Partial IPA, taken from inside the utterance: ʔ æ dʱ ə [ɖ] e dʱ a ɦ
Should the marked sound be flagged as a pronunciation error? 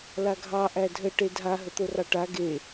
yes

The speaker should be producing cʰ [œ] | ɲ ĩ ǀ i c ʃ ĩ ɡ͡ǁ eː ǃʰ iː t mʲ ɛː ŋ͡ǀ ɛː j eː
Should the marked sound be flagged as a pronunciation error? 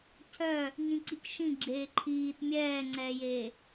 no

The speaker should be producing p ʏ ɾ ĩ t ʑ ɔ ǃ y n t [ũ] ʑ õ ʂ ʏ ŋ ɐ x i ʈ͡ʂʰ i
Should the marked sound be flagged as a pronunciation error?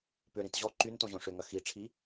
yes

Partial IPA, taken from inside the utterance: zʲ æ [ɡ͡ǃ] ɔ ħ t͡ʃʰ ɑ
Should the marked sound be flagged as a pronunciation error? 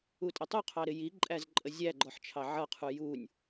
no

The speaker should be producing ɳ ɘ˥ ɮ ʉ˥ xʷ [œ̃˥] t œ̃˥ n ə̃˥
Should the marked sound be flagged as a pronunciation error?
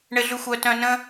yes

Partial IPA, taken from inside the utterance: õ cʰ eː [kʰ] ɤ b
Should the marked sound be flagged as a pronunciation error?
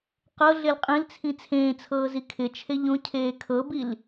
no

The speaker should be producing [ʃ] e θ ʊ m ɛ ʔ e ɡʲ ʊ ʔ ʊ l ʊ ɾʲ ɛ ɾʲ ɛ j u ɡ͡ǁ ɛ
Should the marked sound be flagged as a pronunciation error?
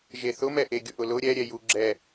yes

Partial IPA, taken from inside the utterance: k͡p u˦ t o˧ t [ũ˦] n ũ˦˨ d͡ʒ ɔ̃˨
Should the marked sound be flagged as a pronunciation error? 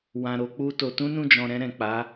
no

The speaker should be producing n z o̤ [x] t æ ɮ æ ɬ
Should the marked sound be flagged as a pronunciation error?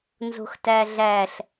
no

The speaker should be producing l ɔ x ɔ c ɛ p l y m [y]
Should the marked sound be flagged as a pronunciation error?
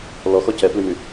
no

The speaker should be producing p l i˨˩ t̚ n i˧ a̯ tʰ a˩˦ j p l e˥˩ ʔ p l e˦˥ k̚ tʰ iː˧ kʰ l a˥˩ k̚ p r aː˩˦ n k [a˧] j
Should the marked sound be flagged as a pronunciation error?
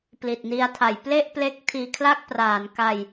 no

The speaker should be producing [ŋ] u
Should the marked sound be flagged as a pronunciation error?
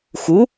yes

